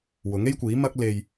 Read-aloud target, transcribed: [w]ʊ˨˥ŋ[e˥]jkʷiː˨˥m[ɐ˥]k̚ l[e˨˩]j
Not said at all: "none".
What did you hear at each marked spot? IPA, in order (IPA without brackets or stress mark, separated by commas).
w, e˥, ɐ˥, e˧